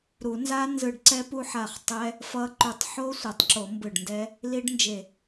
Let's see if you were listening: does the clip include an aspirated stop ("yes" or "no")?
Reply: no